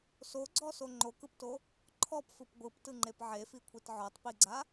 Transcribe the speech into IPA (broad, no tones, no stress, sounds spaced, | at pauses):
s o ɡ͡ǀ ɔ s o ŋ͡ǃ o k ɯ p t o | ǃʰ ɔ p f ɯ p ɡʷ ɯ p t ɯ ŋ͡ǃ e p ʕ e f i kʷʰ i t ʕ ɔ tˤ p i ɡ͡ǀ a